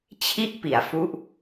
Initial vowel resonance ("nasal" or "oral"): oral